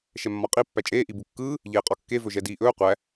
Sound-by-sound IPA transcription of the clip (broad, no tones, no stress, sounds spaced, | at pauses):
ʃ ɛ mː ɒ qʼ i pː æ t͡ʃʼ eː ʔ i b u kː ɯː | ʎ eː qʼ ɒ kː e v ɵ ʒ ɛ d iː ʔ ɵː qʷ æ